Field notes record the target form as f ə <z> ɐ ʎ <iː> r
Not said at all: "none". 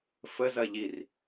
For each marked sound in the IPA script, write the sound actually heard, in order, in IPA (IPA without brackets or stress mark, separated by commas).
z, i